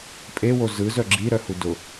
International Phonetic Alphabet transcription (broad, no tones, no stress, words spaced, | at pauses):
pʼewo zɯzœ ɡ͡ǁiɾœhu dʊ